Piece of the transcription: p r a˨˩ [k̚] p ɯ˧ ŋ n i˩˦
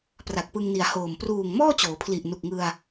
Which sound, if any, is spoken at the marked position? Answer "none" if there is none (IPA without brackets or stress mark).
k̚